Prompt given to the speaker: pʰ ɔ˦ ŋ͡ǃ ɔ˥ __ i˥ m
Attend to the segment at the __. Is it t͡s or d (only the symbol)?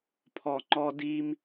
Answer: d